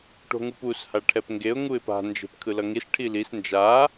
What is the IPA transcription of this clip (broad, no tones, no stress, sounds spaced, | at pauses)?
ʈ o̤ ŋ u p u s h a ʈʰ ɛ p ŋ ɡ e ʊ̯ ŋ u ɪ̯ p a̤ n d͡ʒ e̤ p kʰ ɯ l ʌ ŋ i s ʈʰ i l i s n d͡ʒ a